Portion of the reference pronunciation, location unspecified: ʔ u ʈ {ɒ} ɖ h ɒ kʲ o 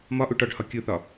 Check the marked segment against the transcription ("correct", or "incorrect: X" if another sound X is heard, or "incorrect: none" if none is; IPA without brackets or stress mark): correct